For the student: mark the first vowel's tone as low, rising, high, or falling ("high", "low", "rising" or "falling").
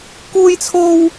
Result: high